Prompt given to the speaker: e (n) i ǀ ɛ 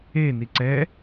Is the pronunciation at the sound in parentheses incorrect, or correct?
correct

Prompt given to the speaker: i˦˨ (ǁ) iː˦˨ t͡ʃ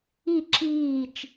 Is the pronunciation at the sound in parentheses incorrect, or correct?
correct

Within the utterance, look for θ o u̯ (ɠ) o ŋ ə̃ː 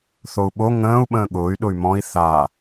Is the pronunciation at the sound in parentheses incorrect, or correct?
incorrect: ɓ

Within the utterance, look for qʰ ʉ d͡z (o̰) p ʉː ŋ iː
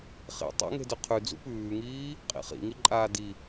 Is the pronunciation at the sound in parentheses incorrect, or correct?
incorrect: ṵ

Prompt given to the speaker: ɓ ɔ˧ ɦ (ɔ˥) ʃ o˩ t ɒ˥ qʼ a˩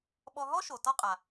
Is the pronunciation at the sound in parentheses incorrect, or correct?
correct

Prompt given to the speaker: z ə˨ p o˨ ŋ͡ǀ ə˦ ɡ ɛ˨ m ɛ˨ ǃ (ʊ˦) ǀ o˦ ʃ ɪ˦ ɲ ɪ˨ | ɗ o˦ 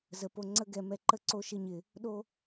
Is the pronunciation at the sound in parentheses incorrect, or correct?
incorrect: ə˦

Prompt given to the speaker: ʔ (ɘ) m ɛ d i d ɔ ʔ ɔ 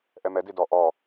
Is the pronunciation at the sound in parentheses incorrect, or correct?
incorrect: ɛ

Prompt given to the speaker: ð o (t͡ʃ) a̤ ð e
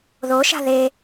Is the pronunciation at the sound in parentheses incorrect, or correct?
incorrect: ʃ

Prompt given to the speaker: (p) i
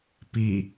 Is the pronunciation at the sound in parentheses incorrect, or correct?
correct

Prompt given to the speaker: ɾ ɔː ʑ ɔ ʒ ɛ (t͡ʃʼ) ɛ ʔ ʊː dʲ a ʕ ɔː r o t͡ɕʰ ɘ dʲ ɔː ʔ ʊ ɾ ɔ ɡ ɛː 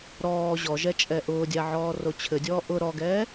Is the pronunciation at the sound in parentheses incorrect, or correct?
correct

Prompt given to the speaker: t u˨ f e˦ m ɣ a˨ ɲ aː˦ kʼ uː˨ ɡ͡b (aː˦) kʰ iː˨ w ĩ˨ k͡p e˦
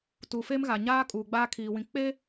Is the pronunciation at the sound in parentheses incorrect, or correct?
correct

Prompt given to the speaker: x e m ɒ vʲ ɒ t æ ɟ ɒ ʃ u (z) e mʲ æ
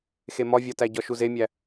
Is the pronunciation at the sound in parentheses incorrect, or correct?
correct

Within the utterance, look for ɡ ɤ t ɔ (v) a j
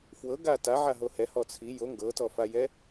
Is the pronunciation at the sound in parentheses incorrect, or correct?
incorrect: f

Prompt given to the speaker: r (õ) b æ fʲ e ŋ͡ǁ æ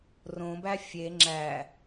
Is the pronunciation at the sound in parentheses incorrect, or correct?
correct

